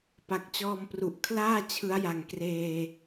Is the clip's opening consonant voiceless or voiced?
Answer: voiceless